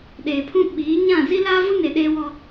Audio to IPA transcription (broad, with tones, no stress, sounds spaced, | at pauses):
ɗ eː˨ pʰ ũ˦ ɓ iː˨˦ ɲ ã˦˨ z i˦ l aː˦ v u˦ n e˨ ɗ eː˦ w ɔ˦